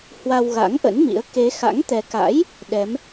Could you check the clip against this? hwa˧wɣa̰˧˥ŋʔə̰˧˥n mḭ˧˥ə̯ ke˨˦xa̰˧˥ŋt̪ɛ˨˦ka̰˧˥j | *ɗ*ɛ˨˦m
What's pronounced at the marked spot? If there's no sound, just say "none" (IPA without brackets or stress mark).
ɗ